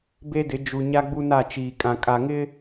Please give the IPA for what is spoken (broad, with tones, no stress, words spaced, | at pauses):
be˦dɪ˨˦ d͡ʒu˨ɲa˦ ɡ͡bu˦na˦˨ t͡ʃiː˨kʼã˨ kʼa˨ŋɪ˦